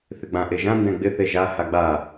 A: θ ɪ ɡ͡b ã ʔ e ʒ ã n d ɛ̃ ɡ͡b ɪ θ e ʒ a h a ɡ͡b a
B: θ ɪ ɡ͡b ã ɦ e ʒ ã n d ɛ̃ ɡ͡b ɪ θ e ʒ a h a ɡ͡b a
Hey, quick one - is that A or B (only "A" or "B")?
A